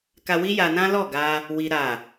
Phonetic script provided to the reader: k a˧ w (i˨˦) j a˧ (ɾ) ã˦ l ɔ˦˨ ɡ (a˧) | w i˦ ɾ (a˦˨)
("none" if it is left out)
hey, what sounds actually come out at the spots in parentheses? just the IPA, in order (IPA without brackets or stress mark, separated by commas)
i˦, n, a˧, a˦˨